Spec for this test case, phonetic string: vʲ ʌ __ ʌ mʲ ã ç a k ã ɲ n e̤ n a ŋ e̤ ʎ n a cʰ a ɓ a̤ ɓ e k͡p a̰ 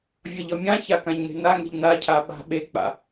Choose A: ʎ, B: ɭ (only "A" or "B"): A